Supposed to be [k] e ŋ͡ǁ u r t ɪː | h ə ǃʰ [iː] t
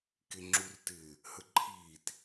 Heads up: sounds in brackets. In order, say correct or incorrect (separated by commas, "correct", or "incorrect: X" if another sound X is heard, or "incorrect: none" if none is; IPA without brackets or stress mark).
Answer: correct, correct